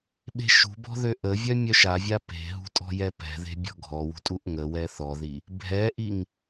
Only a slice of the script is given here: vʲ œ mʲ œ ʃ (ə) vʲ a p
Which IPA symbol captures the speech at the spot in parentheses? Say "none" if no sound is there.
a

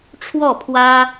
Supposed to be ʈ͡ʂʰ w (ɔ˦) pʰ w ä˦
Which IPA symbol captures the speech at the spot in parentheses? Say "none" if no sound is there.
ɔ˥˨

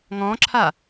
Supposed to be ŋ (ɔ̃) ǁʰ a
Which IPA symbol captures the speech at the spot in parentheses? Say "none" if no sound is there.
ɔ̃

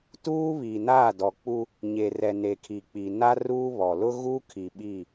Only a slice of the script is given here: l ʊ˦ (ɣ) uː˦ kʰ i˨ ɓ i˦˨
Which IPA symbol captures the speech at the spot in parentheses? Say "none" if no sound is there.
ɣ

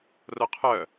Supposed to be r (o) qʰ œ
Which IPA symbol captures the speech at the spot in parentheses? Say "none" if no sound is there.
o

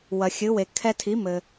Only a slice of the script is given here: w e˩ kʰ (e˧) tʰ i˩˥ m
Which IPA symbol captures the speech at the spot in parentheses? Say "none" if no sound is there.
ɛ˧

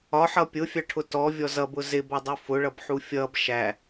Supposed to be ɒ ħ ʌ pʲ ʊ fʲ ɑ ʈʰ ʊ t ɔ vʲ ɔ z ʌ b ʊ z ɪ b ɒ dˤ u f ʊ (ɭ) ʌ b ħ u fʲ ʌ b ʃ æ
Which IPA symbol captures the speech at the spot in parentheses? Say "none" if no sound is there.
ɭ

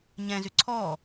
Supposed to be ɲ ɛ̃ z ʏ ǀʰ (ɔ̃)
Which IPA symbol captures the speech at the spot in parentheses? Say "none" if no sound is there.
ɔ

